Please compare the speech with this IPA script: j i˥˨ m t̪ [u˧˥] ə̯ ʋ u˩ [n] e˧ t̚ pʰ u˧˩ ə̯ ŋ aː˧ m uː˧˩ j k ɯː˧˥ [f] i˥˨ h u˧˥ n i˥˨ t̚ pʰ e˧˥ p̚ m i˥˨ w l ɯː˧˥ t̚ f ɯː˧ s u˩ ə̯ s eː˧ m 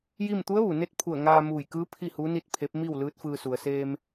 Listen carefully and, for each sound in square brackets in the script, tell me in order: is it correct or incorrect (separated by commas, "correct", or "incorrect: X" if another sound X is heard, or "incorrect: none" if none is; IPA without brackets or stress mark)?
correct, correct, incorrect: pʰ